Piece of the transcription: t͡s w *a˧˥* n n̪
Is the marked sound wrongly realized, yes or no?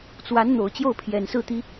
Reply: no